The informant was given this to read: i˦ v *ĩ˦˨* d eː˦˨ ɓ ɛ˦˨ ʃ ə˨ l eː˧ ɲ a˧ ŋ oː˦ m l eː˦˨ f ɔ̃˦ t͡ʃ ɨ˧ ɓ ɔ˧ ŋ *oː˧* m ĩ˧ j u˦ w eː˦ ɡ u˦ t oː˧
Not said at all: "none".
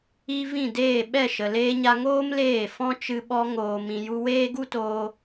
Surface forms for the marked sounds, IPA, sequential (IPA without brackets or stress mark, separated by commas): ĩ˦˨, oː˧